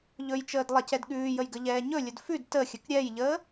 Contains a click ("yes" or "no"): no